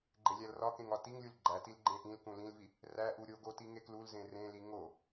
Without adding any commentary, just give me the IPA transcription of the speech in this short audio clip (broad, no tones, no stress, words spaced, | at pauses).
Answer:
ɡ͡ǃelʲælrɒkẽŋ ɒtiŋlʲul ɡ͡ǃætil ɡ͡ǃẽʔĩlkũ lĩlvi | ræʔu ɾʲoɡo tiŋeklulzẽ rẽli ŋo